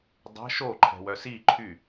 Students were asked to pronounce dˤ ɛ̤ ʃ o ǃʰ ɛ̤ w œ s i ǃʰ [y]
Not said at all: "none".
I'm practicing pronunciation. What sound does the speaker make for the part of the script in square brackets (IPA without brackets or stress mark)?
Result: y